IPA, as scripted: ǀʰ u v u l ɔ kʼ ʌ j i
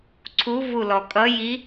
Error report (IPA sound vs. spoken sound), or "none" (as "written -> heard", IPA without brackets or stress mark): none